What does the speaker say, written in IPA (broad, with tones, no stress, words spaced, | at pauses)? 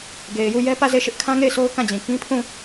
ɡe˨ɪ̯ju˦˨jɛ˦ pä˦˨ze˦˨ʃɪ˦ʔ kʰã˦ŋe˦˨ɪ̯sʰo˦ʊ̯ kã˦˨d͡ʑĩ˨ kĩ˦pʰũ˦˨